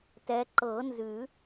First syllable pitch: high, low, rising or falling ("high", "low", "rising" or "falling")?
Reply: rising